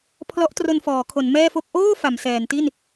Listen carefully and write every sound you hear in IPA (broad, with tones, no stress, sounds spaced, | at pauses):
pʰ l ɔ˦˥ ʔ t r o˧ n f ɔː˩˦ kʰ o˩˦ n m ɛː˥˩ f o˥˩ k̚ ʔ oː˥˩ f a˩˦ m s ɛː˩˦ n t i˥˩ n